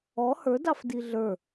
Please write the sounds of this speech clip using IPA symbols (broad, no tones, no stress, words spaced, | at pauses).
ɔ hə˞dɑfdi ɮə˞